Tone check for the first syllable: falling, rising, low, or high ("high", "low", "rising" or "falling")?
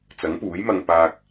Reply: rising